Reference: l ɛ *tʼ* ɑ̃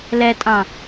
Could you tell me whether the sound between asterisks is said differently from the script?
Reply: no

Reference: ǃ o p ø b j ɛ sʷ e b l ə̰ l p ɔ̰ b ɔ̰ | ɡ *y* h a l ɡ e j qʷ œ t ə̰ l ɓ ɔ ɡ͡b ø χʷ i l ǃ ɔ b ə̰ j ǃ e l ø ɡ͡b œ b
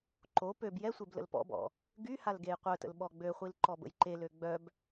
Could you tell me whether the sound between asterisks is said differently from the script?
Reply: no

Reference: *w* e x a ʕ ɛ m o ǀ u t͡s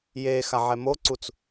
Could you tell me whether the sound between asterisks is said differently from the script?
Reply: yes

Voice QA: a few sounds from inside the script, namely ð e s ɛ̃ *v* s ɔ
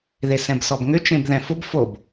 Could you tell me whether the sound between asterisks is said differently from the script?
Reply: yes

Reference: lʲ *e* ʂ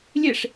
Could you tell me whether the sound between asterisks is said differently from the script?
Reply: no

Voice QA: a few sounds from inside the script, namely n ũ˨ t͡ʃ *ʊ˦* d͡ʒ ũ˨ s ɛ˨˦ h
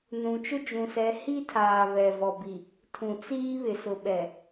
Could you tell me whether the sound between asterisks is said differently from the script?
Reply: no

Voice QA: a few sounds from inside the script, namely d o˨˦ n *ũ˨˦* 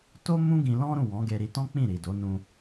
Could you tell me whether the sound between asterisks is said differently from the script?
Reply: yes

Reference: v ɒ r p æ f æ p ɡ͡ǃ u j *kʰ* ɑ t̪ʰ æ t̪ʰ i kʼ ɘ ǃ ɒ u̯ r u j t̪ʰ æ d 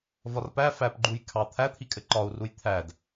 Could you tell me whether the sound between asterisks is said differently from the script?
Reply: no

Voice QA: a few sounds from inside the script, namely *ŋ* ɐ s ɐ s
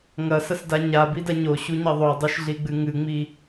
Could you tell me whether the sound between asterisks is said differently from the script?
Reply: no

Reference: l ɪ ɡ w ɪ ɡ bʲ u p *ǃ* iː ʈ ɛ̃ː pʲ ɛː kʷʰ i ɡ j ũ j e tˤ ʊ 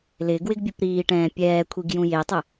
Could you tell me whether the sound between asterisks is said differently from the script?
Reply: yes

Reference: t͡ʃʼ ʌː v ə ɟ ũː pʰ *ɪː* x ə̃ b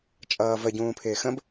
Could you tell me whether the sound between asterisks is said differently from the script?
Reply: no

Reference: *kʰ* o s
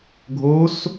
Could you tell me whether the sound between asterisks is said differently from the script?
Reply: yes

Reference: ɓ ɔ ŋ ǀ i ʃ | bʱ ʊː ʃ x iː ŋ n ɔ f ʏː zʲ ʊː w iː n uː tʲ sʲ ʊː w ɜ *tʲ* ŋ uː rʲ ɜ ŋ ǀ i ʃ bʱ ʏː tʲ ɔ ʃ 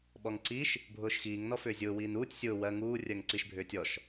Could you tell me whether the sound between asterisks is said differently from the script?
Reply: yes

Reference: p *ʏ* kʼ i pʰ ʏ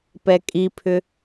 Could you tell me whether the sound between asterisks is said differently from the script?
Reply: yes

